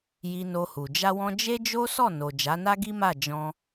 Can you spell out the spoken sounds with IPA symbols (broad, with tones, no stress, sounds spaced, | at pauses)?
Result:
j i˧ n o˧ h u˨ d͡ʒ a˧ w ɔ̃˧ d͡ʒ e˦ d͡ʒ o˦ s ɔ˦˨ n o˨ d͡ʒ a˨˦ n a˦ ɡ i˦ m a˦˨ d͡ʒ ɔ̃˧